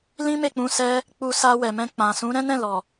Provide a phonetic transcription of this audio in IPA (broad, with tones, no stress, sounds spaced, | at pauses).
l ĩ˦ m e˦˨ k͡p ũ˧ s ɛ˧ | k͡p u˧ s a˧ w ɛ˨ m ɛ̃˧ k͡p ã˨ s ũ˨˦ ɾ ɛ̃˦ n ɛ̃˦˨ l ɔ˨